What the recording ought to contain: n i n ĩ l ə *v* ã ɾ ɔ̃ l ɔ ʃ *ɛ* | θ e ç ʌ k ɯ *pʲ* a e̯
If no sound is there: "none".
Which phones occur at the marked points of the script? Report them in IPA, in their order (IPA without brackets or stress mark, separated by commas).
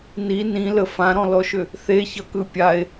f, ʏ, pʲ